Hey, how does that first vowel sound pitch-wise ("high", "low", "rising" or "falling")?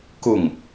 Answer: falling